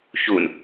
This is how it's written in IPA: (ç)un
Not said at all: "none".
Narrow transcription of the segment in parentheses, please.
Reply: ç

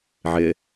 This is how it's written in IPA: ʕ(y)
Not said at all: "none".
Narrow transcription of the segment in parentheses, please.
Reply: ɪ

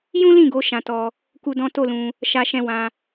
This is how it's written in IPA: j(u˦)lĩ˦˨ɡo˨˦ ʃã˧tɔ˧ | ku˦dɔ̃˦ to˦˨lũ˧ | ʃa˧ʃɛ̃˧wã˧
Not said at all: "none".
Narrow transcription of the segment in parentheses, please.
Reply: ũ˦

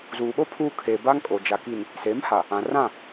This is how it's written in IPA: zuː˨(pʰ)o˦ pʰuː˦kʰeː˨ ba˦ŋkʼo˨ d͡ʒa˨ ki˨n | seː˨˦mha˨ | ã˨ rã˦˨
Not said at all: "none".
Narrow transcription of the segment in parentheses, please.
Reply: ɓ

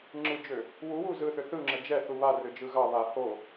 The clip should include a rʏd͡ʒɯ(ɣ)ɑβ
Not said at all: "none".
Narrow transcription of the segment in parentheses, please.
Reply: ɣ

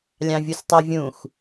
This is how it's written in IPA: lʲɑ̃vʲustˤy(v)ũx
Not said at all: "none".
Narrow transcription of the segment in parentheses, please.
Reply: vʲ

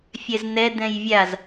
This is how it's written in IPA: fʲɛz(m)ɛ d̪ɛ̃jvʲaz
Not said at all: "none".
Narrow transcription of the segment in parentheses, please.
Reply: n̪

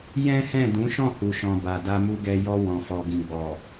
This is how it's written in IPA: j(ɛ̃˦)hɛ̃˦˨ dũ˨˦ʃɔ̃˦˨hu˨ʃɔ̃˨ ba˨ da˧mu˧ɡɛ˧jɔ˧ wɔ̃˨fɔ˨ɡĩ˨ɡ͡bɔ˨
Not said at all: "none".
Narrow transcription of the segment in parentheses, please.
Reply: ɛ̃˦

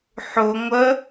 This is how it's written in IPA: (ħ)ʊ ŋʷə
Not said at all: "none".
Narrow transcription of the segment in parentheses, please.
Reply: ħ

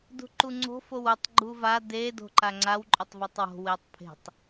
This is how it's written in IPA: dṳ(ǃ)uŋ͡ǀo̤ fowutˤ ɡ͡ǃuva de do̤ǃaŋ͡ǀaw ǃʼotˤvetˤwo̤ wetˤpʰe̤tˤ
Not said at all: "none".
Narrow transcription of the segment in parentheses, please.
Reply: ǃ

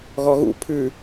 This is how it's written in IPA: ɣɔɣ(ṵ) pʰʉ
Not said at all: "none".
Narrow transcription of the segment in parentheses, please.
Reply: ṵ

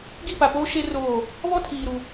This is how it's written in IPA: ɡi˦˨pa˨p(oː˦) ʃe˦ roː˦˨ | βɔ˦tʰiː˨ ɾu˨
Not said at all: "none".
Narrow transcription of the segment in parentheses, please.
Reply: oː˦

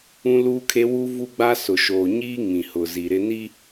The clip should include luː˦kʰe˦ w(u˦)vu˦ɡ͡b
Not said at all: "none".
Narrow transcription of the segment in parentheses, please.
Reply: u˦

